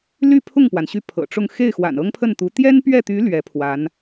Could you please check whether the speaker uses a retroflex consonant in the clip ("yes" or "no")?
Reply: yes